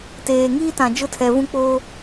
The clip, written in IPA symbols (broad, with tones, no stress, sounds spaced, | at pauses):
t eː˨ ŋ iː˦ t ã˨ d͡ʒ ʊ˦ tʰ ɛ˨ v ũ˦ k͡p oː˦